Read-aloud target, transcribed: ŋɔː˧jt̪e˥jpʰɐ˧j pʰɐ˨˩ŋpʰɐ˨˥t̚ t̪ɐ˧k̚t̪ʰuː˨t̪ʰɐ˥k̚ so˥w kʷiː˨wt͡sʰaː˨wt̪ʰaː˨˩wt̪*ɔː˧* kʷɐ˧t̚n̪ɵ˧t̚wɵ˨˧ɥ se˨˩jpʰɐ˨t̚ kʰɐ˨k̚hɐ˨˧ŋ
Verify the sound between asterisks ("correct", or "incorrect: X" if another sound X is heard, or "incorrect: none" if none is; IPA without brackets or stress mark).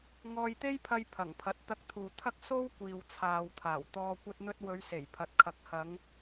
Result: correct